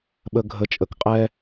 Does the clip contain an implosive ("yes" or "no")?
yes